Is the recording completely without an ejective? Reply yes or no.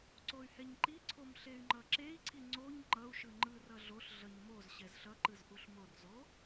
yes